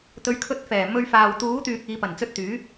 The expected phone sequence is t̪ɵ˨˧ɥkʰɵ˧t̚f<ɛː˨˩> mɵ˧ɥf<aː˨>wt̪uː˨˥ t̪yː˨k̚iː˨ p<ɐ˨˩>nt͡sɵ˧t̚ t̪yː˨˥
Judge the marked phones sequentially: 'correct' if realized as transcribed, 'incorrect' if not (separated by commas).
correct, correct, correct